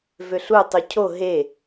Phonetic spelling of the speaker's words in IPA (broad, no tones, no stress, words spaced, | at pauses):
vøɬu tˤucʰo ɦe